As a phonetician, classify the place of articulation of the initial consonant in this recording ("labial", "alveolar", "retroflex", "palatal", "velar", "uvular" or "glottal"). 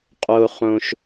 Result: uvular